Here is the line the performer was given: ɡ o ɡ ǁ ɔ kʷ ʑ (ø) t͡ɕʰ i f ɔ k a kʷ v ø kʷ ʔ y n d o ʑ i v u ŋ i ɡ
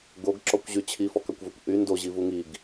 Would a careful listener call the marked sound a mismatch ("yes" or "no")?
yes